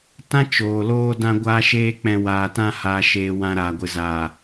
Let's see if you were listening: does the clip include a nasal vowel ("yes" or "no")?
yes